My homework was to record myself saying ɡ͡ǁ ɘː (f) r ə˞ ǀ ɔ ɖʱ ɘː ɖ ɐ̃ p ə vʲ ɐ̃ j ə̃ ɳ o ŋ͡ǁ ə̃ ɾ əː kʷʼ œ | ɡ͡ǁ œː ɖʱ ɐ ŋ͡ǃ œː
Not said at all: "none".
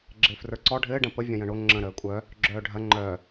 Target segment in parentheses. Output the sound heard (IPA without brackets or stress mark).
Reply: f